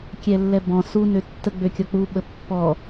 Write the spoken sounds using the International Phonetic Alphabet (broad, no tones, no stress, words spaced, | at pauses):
kʲɛlːɛbɔ̃ su nøtːə ɡ͡bøkʲɔk͡pu ɓəpːɔ